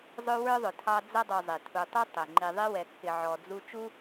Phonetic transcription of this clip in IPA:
zˤ ʊ˦ w ə˞˥ ðˤ ʊ˨ tʰ ɑ˦ d͡z ʌ˦ dˤ u˨ zˤ i˩ tʰ u˨ tˤ u˥ tˤ ɪ˩ ŋ͡ǃ i˨ ðˤ i˦ w ɛ˨ kː ɪ˨ ʕ ɔ˨ d͡z u˦ t͡ʃ u˥

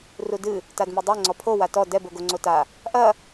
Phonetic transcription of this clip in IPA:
r u d ɨ | t a d m i dˤ e ŋ͡ǀ ɔ pʰ o w a t ɔ d ɛ b o ɡ o ŋ͡ǀ o t a | ʔ ɐ

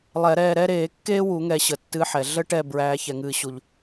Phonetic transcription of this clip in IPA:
lˠ ɛ˧˩˧ ɾ ɛː˦˨ ɾ ɛ˥ ɾ eː˧˩˧ kː eː˥ w u˧˩˧ ŋ ɛ˧˩˧ ɕ ə˩ tː ɨ˨˦ ħ ɛ˩ ɮ ə˥ ʈ ɛ˦˨ b ɹ æː˨˦ ç ɛ˩ ŋ ɨː˧˩˧ ɕ u˩ ʎ

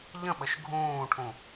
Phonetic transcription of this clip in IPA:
ʎ ə̃ ɓ ə ʃ ɡʱ ũː ʈʰ ũ

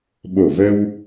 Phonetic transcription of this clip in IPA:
ɓ o˧˩ v ə˧ w

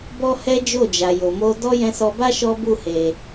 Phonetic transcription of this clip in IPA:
b ɔ˦ h ɛ˦ d͡ʒ o˦˨ d͡ʒ a˨ j o˨ m o˧ d ɔ˦ j ɛ̃˧ s ɔ˧ b a˦ ʃ ɔ˦ b u˦˨ h e˨

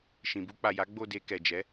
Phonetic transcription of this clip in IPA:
ʃ ĩ˨ b u˧ k͡p a˨ j a˨˦ ɡ͡b o˦˨ d e˧ k ɛ˨ d͡ʒ ɛ˨˦

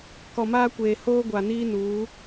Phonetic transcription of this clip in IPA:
k ɔ˨ m aː˦ kʷ eː˨ h oː˦ ɡʷ a˨ n iː˦ n uː˨˦

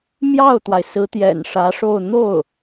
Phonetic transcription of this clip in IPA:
m j ɑ˥˩ ʊ̯ t̪ w a˩ ɪ̯ s ɹ̩˧˥ t̪ j ɛ̰˨˩ n ʂ ä˧˥ ʂ o˥˧ ʊ̯ n̪ o˥˩ ʊ̯

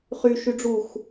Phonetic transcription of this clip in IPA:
χ y ʃ y ɖ͡ʐ u x

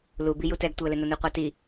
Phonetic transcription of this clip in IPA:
l u b i j u t ɛ ɡ tʷ ɪ ə̯ l ɪ n ʊ n u qʷ ɑ t i

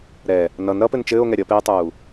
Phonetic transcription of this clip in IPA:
ɾ ɛ | n ʌ n ɾ ʌ p ɘ n t͡ʃ ɘː o̯ ŋ ɛ ɾʲ ʌ p eː tˤ uː

